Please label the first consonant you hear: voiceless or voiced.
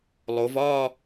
voiced